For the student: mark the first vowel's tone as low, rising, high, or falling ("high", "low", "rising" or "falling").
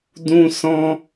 high